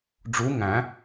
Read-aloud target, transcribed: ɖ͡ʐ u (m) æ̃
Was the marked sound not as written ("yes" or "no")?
yes